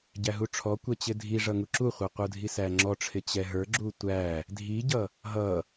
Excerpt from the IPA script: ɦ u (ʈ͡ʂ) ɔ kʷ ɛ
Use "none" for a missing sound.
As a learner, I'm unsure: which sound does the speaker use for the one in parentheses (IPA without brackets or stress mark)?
ʈ͡ʂʰ